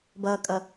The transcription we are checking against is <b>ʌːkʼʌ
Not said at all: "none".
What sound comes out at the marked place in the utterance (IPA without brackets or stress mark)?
b